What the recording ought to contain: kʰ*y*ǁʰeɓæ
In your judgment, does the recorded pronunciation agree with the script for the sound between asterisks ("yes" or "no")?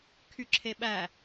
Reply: yes